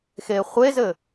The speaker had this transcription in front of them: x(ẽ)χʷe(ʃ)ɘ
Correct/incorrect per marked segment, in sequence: incorrect, incorrect

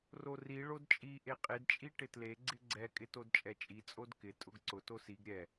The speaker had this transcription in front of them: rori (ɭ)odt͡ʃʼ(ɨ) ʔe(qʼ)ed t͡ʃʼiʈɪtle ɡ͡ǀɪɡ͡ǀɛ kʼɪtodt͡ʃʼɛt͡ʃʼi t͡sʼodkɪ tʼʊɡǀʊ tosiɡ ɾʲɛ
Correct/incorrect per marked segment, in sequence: correct, incorrect, correct

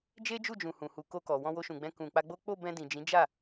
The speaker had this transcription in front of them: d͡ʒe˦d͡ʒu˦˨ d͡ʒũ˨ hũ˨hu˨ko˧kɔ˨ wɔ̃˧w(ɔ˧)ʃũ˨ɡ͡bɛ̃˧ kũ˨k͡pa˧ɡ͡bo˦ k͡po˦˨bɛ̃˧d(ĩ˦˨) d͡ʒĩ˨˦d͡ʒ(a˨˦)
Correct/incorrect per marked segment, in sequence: incorrect, incorrect, incorrect

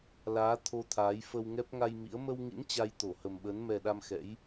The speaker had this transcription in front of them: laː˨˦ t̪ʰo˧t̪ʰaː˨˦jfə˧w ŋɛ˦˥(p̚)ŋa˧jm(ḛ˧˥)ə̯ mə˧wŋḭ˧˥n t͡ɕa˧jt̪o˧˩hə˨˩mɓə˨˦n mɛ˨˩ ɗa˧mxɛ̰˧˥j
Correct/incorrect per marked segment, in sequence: correct, incorrect

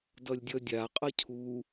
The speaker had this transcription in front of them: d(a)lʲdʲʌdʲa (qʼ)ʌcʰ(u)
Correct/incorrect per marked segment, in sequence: incorrect, correct, correct

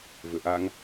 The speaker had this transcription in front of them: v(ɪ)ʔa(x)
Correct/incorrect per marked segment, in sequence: incorrect, incorrect

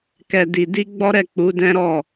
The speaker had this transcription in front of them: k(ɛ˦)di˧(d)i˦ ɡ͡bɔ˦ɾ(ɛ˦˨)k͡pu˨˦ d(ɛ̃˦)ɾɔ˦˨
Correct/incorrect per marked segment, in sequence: incorrect, correct, correct, correct

